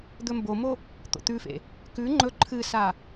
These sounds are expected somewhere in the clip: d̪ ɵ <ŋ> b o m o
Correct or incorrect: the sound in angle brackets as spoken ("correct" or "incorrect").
incorrect